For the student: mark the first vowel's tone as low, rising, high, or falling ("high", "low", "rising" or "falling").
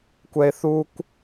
high